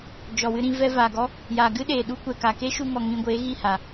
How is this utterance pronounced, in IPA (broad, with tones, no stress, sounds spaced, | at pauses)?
d͡ʒ ɔ˨ w ɨ˧ ɾ ĩ˧ v ɛ˧ v a˨ ɡ ɔ˦ | j aː˨ ɡ ɨ˦ ɗ eː˨ ɗ u˦ kʷ ɛ˨ k a˨ k eː˦ ʃ u˧ ŋ ɔ˨ ŋ ĩ˧ ɡʷ eː˨˦ ɣ i˦˨ h a˨